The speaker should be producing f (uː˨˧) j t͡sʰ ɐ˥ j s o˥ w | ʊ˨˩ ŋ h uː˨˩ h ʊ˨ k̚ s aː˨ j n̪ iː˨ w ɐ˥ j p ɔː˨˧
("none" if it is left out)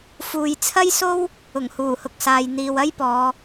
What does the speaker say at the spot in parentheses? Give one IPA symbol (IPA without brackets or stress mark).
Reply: uː˨